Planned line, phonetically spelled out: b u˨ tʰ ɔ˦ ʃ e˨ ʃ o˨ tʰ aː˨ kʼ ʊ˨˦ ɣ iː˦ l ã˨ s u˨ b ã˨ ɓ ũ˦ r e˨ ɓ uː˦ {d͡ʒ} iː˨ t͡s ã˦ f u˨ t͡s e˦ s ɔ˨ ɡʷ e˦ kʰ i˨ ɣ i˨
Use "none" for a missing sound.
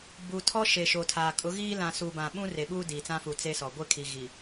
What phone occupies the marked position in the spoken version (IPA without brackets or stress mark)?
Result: d